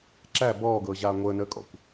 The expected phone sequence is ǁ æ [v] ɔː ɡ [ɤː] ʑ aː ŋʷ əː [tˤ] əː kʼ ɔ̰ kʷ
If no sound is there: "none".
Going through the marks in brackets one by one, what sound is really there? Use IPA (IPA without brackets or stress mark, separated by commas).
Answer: b, ɤː, n